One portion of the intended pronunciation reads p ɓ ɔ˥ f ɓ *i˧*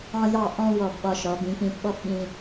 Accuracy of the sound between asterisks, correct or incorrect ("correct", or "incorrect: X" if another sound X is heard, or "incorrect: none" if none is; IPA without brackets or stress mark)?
incorrect: ĩ˧